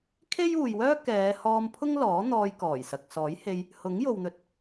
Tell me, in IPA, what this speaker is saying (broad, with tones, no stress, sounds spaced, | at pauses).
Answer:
kʰ e˥ j uː˨ j w œː˥ k ɛː˨˧ h ɔː˧ m pʰ ʊ˥ ŋ l ɔː˨˥ n̪ ɔː˧ j k ɔː˨˩ j s ɐ˨ k̚ s ɔː˨˥ j h e˧ j | h ʊ˨˥ ŋ j o˨ w n̪ ɵ˨ t̚